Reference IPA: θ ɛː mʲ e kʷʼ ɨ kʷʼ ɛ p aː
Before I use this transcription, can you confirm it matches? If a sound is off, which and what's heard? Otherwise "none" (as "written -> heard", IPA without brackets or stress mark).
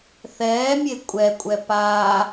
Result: ɨ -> ɛ